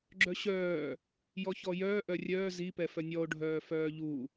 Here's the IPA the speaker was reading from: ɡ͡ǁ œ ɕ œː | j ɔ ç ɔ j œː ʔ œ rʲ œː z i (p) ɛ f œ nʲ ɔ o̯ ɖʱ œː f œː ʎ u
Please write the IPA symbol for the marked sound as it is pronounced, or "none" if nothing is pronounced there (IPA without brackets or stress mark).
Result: p